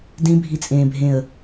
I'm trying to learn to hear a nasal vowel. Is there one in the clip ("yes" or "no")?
yes